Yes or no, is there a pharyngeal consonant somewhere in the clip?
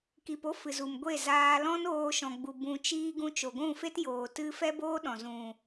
no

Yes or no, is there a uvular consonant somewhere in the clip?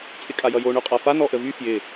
yes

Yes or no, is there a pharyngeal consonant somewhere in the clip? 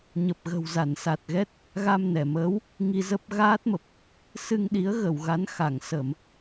no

